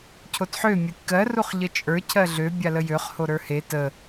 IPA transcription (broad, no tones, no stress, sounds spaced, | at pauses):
cʰ o t ħ ø mʲ ə˞ tʲ k ɜ r u χ ʎ ə t͡ʃʼ ə˞ cʰ ɜ ɮ ø bʲ a l ə j ø χ h o ɾ ə˞ h e t ə